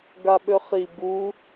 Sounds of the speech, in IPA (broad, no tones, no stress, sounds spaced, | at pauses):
ɡ a ɓ ø χ i b u